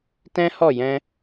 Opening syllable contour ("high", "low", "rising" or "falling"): high